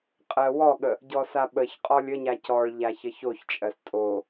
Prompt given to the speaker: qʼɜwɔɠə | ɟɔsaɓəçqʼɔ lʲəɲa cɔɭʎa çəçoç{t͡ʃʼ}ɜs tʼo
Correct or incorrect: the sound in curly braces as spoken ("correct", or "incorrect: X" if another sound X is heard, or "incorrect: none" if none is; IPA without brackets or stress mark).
correct